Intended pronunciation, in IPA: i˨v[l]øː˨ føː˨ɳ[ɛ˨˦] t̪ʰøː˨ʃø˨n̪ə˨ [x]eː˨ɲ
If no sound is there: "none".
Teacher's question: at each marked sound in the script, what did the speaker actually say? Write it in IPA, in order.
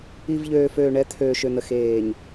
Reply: ʎ, ɛ˨˦, x

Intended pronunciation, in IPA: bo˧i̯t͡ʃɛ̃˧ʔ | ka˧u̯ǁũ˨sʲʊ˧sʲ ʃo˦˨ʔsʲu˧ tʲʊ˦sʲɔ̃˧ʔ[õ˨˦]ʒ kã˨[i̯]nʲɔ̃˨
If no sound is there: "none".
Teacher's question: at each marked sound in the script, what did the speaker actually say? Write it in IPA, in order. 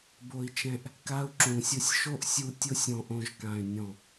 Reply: õ˧, y̯

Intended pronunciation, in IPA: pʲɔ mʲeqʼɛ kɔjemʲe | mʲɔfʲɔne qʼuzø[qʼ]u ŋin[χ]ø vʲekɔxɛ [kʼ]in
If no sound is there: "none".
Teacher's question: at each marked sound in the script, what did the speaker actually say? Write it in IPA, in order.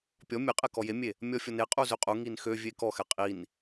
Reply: qʼ, x, qʼ

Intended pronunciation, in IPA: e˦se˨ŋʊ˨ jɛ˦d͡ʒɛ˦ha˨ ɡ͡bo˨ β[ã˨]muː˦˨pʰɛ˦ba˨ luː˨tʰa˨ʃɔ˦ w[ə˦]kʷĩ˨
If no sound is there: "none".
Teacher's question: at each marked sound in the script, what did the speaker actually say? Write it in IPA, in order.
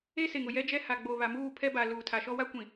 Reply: a˨, a˦

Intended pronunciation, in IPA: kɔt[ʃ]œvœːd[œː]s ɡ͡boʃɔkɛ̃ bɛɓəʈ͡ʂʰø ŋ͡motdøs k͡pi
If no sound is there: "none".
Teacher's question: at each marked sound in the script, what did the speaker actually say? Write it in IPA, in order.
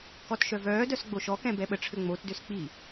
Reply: ʃ, œ

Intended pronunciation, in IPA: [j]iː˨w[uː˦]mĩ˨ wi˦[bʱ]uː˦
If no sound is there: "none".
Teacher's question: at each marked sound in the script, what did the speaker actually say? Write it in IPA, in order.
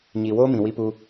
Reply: ɲ, oː˦, p

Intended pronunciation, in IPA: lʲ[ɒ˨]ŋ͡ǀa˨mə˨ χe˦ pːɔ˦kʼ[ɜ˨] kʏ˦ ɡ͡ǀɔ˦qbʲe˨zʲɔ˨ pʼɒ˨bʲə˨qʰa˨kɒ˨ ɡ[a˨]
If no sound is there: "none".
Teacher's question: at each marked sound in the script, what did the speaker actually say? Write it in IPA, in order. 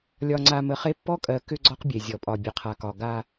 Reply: ɒ˨, ɜ˨, a˦

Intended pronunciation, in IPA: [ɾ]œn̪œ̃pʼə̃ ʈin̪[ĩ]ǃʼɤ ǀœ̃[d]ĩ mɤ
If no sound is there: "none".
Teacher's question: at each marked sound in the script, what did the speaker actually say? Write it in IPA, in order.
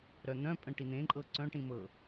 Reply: ɾ, ẽ, ʈ

